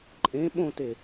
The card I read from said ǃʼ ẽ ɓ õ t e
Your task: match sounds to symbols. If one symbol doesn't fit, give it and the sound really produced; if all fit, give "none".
none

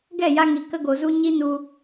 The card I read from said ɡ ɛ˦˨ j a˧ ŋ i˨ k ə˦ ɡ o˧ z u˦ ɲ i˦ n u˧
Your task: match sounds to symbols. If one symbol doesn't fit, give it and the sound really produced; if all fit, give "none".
none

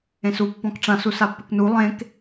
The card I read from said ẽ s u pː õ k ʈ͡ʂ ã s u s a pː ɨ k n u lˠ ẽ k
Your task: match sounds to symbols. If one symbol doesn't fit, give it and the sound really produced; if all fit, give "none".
õ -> ɔ̃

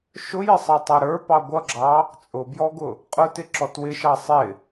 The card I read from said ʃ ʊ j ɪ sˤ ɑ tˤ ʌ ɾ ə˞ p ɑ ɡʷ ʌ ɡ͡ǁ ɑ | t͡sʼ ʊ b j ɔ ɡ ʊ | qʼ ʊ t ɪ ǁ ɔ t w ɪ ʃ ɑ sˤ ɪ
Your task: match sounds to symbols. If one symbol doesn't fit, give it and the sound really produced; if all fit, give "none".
none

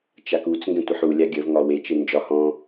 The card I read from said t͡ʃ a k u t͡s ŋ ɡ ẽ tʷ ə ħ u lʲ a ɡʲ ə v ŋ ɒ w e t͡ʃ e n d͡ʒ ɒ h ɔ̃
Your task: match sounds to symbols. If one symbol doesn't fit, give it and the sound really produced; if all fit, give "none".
none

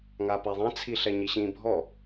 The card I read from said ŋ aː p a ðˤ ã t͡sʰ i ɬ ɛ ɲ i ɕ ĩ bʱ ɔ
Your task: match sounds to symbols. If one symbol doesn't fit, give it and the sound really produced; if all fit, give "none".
none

